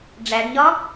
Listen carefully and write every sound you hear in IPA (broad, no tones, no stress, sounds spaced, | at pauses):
ɖ͡ʐ æ ɖ ɲ ɒ